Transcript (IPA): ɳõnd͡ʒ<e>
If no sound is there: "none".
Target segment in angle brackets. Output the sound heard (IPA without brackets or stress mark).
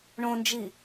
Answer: i